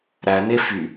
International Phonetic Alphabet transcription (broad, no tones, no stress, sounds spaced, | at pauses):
ɾ æ n e f y